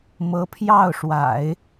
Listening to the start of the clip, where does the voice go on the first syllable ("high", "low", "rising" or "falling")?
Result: rising